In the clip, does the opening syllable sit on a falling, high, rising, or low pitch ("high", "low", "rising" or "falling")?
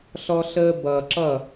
high